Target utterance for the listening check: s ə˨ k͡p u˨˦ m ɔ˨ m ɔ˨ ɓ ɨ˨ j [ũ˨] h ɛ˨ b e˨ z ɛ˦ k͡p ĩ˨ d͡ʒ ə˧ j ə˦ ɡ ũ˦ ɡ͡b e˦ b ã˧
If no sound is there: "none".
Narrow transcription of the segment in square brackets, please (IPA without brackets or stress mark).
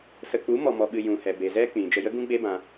ũ˨